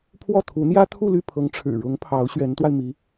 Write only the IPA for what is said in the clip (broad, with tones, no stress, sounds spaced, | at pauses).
pʰ w ɔ˥˩ t̪ʰ u˧˥ n̪ j ä˥ t̪ʰ u˥˧ l y˥˩ pʰ ɤ˧˥ ŋ ʈ͡ʂʰ ɻ̩˨˩ ɻ ʊ˧˥ ŋ pʰ ɑ˧˥ ʊ̯ ɕ ɥ ɛ˧˥ n t̪ w a˧ ɪ̯ m i˧˥